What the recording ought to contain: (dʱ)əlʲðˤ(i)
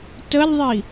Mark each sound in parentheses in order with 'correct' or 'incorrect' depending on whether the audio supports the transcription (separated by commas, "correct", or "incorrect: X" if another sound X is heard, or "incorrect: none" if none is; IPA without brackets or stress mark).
incorrect: t, correct